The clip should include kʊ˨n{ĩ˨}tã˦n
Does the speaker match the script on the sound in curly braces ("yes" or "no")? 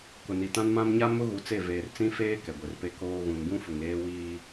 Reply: no